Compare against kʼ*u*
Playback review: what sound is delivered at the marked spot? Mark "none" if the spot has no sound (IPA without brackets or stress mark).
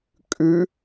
ʉ